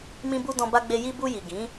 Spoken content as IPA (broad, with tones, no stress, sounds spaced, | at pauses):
m ĩ˧ b u˧ d ɔ̃˧ b a˧ ɡ͡b e˧ j i˧ b u˧ j i˨ ɡ ĩ˨˦